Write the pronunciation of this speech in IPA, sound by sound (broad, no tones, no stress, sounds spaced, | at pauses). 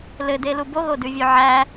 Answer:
l ɘ d e l u b o ɣ o d ʉ vʲ ʉ ʕ æ